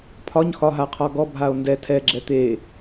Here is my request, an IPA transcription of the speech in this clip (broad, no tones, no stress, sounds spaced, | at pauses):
pʰ ɒ ɲ x ɒ ɦ a qʰ ɒ ɡ ɔ bʱ a o̯ n d ɛ tʰ ɛ ɡ͡ǁ ɛ t̪ e